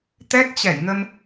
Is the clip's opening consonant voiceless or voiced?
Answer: voiceless